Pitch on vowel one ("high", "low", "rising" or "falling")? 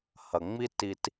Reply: low